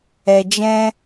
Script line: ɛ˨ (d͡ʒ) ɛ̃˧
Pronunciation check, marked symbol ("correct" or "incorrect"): correct